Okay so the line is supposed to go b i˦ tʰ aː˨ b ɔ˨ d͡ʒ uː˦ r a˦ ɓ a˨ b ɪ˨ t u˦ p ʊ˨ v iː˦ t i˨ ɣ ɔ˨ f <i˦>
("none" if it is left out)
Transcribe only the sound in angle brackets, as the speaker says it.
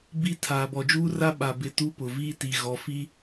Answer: i˦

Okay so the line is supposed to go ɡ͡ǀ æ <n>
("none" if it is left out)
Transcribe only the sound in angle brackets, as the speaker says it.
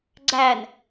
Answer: n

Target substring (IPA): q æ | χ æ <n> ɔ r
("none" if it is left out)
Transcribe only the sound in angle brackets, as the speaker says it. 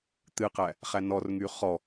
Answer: n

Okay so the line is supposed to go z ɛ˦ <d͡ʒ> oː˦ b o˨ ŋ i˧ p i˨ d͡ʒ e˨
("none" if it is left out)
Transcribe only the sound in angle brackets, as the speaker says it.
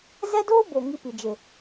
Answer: d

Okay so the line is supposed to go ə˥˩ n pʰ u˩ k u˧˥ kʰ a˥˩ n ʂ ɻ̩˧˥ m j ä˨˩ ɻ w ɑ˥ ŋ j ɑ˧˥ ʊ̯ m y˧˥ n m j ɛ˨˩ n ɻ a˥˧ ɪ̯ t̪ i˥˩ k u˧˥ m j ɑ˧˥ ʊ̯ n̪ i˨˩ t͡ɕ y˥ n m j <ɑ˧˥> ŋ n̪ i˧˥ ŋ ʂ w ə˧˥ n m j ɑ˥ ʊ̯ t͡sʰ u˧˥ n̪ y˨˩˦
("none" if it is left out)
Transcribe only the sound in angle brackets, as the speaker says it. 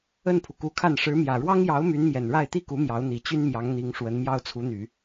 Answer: ɑ˧˥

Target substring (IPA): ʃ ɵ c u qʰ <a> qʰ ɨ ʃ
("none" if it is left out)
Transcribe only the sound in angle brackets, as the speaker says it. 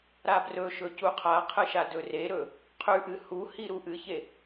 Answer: a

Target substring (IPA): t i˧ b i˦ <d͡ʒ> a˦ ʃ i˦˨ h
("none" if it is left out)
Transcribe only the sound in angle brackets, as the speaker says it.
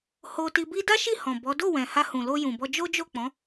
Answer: d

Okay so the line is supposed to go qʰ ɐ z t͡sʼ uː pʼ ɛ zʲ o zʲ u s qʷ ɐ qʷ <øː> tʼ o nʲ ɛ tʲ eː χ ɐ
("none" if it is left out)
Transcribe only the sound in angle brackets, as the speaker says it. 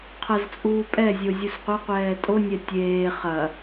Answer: ɛː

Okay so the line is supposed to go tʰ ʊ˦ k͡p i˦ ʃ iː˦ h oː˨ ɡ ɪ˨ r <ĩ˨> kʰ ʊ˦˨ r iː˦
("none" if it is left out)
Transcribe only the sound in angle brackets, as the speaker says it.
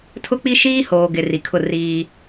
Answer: i˨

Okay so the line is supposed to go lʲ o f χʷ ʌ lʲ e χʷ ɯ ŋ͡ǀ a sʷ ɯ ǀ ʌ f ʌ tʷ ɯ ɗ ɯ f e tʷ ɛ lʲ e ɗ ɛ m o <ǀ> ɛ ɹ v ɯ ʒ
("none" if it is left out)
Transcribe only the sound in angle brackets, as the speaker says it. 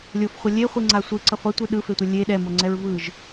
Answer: ŋ͡ǀ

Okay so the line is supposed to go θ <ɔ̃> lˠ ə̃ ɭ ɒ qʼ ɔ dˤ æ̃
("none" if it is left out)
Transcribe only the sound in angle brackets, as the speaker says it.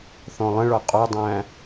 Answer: ɔ̃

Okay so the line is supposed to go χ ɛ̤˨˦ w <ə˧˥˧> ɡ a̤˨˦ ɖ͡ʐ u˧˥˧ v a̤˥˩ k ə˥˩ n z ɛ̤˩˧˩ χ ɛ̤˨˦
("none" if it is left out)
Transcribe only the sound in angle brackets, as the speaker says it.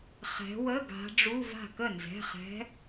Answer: ə˧˥˧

